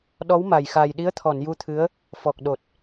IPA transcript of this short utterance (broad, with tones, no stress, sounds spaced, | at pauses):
ɗ ɔ˧˥ w m a˨˩ j x aː˨˩ j ɗ i˧˥ ə̯ t̪ʰ ɔ˨˩˨ n j u˧ t̪ʰ ɨ˧˥ ə̯ | f ɔ˨˩ k̚ ɗ o˨˩ t̚